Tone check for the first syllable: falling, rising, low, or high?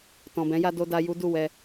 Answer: low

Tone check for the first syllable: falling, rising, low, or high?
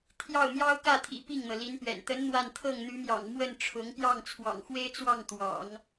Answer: falling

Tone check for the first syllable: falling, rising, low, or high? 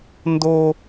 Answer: high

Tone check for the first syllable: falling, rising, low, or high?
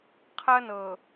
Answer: high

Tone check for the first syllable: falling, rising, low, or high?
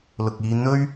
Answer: low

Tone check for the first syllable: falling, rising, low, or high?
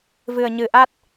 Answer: low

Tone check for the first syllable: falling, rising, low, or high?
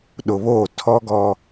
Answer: low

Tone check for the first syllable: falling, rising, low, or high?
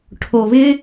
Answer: low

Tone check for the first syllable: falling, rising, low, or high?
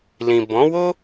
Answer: low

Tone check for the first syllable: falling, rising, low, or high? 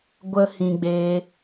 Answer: high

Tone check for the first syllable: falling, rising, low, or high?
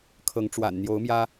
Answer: rising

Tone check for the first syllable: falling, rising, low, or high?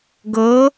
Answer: rising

